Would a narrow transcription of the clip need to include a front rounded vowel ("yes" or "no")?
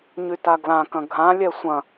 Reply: yes